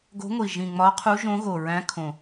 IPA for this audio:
ɡ o̤˧˥ ŋʷ i˨˩ ʒ ĩ˨˩ ŋ͡m ɒ˧˥ qʰ u˧˥ ʒ õ˧˥ ɣ o˨˩ ɹ æ̃˧˥ kʰ õ˨˩

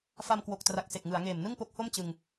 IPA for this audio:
f a˧ m k w o˨˩ k̚ t r a˨˩ k̚ s e˨˩ k̚ ŋ ɯ˩˦ a̯ ŋ eː˨˩ m n ɯ˥˩ ŋ p o˦˥ k̚ h o˥˩ m t͡ɕ ɯ˧ ŋ

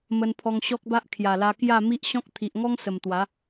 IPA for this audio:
m ə˧ n pʰ ɔ˧ ŋ ɕ ɔ˦ k̚ b a˦ ʔ kʰ j a˨˩ l a˧ k j a˥˧ m i˦ ʔ ɕ ɔ̃˦ k̚ t̪ʰ i˨ ʔ ŋ ɔ˦ ŋ s ə˨˩ m t̪ w a˨˦

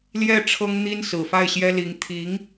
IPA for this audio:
l j ɛ˥˩ ʈ͡ʂʰ ɤ˥ ŋ n̪ i˥ n s ɹ̩˨˩ f a˥˩ ɪ̯ ɕ j ɛ˥ l i˧˥ ŋ t̪ʰ i˧˥ ŋ

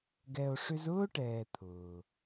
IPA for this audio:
ɡ ɛ˧ o̯ ʂ ʏ˦ z ʊː˦ ʈ ɛː˨ t̪ʰ ʊː˨

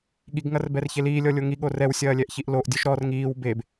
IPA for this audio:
ɠ i ɡ ŋ ɐ r b ɛ r ç e l iː lʲ ɔ lʲ o ŋ i ɠ o r ɛ w sʲ ɐː lʲ ɛ ʔ ç i ʔ l o ʔ dʲ o ʃ ɾ ɔ r ŋ iː w b e b

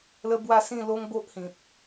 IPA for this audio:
l ə˦ b w a˥˧ s ĩ˥˧ l o˦ ŋ b o˦ ʔ h ĩ˨ p̚

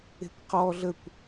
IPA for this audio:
e̤ kʷ q ɔ ɮ ə kʷ

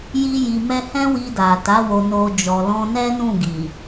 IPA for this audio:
j i˦ j i˧ m ɛ˦ h ɛ̃˦ w i˧ d a˨ t a˨˦ w o˧ n o˧ d͡ʒ ɔ˨ l ɔ̃˧ n ɛ˦ n ũ˦˨ ɡ i˨

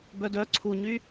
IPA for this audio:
b œ d œ ǀʰ u ɲ y

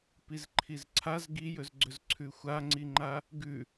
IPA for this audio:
p i z ǃʰ i z ǀʰ a z ɡ i j ɵ z ɡ͡ǀ ɵ z ǀʰ ʉ xʷ a ŋ͡ǀ i ŋ͡ǃ a | ɡ ʉ

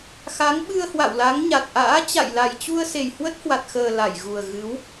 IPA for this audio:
x a˨˦ ŋ ɓ ɨ˧ ə̯ h w a̰˧˨ w l a˨˦ ŋ ɲ a˨˩ t̚ ʔ a̰ː˧˥ t͡ɕ a̰˧˨ j l a˨˩ j t͡ɕ u˧ ə̯ s e˨˩ j h w ə˦˥ t̚ h w a˨˩ t̚ x əː˨˩ l a˧˩ j ɣ u˨˩ ə̯ ɣ ɨ˨˦ w

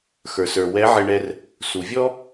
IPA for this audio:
x ə˞˩ s ə˞˩ w ɛ˧˥ ʕ ɪ˧ ɳ ɛ˧ r | s u˩ vʲ ɔ˥

